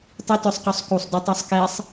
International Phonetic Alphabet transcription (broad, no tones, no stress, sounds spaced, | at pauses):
tˤ i t œ sˤ q ø sˤ k u sˤ d œ tˤ ø sˤ k ɛ sˤ